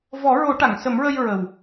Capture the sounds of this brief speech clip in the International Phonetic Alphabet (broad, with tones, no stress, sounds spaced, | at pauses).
v ɔ˨˩˦ ɹ o˨˩˦ ʈ a˨˩˨ ŋ s ə˨˩˦ m ɹ ə˧ j ɹ ə˨˩ w